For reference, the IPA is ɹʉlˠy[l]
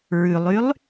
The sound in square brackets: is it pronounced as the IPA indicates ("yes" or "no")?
no